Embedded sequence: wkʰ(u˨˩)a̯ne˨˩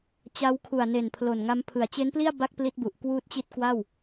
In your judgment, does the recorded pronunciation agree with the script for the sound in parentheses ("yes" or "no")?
yes